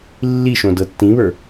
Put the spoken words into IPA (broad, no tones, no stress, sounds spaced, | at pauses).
lː i ʃ õ d ɤ tː ĩ β ə˞